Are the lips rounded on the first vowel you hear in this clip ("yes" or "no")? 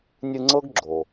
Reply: no